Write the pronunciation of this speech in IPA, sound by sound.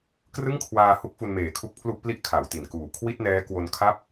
k r ɯ˥˩ ŋ kʰ w aː˧ h u˦˥ k̚ f u˧ n m eː˨˩ kʰ u˦˥ k̚ pʰ l u˥˩ ʔ p l i˥˩ ʔ kʰ a˩˦ w t i˨˩ n k uː˨˩ kʰ w i˥˩ t̚ n ɛː˦˥ k w o˧ n kʰ a˥˩ p̚

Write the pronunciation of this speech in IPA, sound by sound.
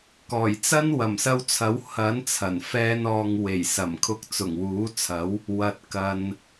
k ɔː˨˩ j t͡s ɐ˥ n w ɐ˨˩ m s ɐ˧ w t͡sʰ ɐ˨˥ w h ɐ˨˥ n t͡sʰ ɐ˨˩ n f ɛː˧ n ɔː˨ ŋ w e˨˩ j s ɐ˨˩ m kʰ ʊ˧ k̚ t͡s ʊ˨˩ ŋ w uː˨˥ t͡sʰ ɐ˨˥ w | w ɐ˨ t̚ k ɐ˨ n

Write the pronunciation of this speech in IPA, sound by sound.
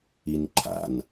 i n ǃʰ a̰ n

